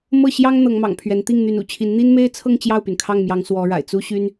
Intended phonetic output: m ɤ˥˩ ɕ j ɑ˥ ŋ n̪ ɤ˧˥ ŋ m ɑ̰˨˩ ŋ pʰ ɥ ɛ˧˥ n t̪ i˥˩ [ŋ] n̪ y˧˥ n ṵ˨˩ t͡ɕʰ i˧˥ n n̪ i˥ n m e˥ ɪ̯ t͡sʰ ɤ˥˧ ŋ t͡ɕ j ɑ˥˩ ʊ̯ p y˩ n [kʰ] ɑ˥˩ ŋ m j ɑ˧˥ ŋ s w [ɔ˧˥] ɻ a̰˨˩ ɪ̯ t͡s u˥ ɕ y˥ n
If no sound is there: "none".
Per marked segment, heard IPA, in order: ŋ, kʰ, ɔ˧˥

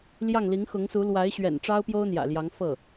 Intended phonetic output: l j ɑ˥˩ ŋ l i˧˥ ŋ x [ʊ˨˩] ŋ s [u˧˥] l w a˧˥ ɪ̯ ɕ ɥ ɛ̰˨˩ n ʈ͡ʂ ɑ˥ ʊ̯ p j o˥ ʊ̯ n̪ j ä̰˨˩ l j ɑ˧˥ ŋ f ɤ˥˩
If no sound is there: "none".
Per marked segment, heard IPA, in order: ʊ˧˥, u˧˥

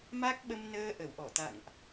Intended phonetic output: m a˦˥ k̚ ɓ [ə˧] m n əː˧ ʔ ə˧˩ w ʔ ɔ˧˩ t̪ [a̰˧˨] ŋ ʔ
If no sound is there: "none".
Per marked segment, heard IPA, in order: ə˧, a̰˧˨

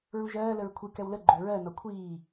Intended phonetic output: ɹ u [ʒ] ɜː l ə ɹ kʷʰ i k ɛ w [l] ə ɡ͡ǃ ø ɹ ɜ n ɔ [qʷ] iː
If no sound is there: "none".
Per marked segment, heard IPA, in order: ʒ, l, kʷʰ

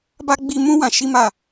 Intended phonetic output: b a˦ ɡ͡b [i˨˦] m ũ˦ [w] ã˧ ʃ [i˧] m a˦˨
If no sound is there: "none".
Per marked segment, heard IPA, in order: i˧, w, i˦

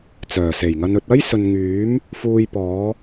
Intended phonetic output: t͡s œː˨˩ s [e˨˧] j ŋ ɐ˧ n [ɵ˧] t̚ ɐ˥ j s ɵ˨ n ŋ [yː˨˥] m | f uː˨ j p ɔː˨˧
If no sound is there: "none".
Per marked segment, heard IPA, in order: e˨˩, ɵ˧, yː˨˥

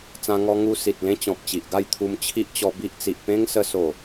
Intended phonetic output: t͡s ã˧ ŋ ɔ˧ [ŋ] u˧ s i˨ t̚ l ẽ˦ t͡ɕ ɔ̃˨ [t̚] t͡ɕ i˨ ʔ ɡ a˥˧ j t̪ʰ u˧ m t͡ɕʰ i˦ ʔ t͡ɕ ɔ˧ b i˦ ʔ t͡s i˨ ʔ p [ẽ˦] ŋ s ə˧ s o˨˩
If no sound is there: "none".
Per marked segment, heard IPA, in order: ŋ, p̚, ẽ˦

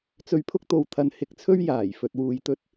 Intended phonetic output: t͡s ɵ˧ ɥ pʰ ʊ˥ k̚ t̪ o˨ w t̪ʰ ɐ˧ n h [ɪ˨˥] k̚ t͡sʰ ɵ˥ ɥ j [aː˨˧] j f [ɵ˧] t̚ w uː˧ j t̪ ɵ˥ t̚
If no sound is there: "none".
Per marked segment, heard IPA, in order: ɪ˧, aː˨˩, ɵ˧

